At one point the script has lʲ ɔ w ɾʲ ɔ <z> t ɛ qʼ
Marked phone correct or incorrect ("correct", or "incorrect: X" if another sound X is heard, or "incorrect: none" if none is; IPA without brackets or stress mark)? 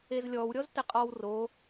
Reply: correct